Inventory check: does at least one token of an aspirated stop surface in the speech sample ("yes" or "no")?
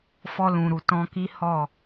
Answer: no